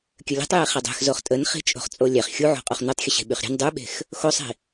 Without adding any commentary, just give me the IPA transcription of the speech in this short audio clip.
kʲ ə lʲ ɛ̤ tˤ j e χ ɛ dˤ ɛ̤ x z o χ tʼ ə n χ i̤ t͡ʃʼ o̤ χ t͡sʼ o lʲ ɛ χ xʲ u ʕ o̤ qʼ o χ n u tˤ xʲ ə ɕ e̤ ɓ y χ ɾʲ ɛ̤ n dˤ y ɓ e̤ x | x o sˤ i̤

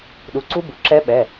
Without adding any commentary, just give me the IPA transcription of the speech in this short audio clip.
ɗ u˩˥ ǀ u˦˥ b u˩˥ ǁ ɛ˦˥ ɓ ɛ˩˧˩

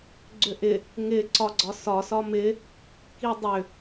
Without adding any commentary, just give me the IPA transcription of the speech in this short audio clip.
ɡ͡ǀ ʏ ʔ ɪ | ŋ ɪ ǀ ɒ ɡ͡ǀ ɒ s ɒ s ɒ m ɪ | k i dˤ ʏ

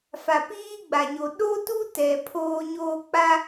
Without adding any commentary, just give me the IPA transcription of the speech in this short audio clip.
f a˨ p iː˦ ɡ͡b a˨ ɲ o˨ ɗ o˦ t u˦ t ɛ˨ pʰ oː˦ ɲ oː˦ k͡p a˦

